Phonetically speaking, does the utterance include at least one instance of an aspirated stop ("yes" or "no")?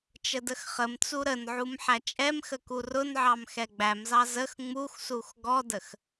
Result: no